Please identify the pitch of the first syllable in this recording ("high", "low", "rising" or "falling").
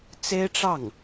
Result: high